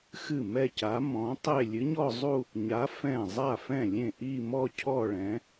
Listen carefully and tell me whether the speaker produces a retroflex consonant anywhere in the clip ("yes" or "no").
yes